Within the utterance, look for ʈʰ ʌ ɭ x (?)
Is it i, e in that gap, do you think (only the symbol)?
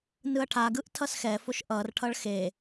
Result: e